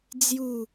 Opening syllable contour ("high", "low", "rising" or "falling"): falling